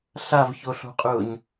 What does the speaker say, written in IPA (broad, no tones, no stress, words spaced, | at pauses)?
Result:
ɬavçoɬo̤qʼʊːɲ